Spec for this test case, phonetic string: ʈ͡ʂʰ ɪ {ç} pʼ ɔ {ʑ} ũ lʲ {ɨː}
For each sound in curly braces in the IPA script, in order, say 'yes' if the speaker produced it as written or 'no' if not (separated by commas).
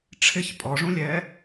yes, no, no